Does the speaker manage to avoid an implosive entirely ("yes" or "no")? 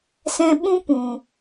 no